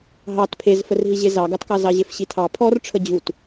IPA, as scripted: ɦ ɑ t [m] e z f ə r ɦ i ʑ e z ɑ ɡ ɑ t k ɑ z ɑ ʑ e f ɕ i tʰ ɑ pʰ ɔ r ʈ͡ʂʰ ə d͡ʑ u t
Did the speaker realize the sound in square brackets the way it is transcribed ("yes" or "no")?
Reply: no